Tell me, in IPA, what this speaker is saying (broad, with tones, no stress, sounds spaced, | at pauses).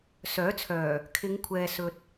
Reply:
s œː˨˥ t͡sʰ œː˨˩ | kʰ ɪ˨˧ ŋ kʷʰ ɛː˨ s ɵ˨ t̚